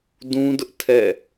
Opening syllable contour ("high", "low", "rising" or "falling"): high